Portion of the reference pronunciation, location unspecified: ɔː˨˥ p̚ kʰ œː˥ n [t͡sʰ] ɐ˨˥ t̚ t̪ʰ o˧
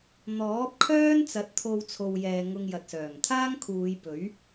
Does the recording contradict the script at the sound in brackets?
yes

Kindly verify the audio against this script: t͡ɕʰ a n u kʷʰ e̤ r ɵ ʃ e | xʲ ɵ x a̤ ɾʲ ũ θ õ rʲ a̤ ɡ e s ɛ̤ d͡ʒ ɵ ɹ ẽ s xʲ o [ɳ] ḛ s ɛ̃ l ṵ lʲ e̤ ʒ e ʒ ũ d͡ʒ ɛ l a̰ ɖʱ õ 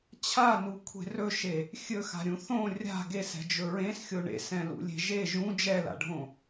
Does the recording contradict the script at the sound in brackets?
no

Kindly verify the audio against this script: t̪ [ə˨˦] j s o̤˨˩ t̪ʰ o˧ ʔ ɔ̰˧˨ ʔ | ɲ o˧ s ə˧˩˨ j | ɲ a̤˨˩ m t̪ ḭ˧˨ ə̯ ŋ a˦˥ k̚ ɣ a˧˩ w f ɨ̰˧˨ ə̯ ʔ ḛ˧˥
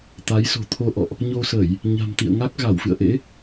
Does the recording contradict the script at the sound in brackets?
yes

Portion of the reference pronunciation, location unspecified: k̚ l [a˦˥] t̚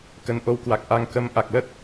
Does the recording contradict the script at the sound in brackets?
yes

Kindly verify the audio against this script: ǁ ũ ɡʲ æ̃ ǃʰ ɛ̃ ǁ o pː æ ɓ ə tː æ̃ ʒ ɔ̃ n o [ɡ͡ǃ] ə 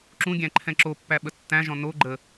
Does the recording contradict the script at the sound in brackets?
no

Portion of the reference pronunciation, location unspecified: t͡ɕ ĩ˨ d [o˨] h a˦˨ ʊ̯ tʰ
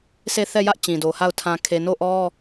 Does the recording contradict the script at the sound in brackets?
no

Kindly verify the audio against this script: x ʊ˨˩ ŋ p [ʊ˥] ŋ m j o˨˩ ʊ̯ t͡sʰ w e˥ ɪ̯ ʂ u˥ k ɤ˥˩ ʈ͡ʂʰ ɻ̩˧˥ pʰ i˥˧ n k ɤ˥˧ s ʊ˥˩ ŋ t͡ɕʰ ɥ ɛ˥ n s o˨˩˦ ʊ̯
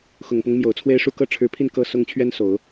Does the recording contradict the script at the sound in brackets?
yes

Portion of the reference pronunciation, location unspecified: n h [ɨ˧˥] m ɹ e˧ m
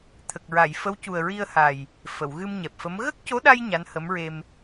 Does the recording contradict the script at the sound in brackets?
yes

